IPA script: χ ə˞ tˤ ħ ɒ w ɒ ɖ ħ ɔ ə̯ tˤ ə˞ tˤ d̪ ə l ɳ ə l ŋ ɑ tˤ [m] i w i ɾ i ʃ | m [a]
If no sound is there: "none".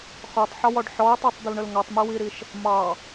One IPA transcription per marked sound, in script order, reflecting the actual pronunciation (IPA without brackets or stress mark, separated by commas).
m, ɑ